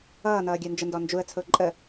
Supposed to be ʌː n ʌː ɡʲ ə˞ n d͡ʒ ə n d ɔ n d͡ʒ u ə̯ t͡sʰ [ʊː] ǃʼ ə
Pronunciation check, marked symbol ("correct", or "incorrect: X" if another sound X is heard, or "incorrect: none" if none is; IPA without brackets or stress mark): correct